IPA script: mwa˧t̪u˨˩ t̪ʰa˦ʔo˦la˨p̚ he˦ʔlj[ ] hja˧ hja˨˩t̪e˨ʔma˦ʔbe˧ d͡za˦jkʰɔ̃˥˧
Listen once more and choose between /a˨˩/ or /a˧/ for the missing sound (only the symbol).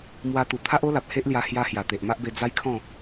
a˧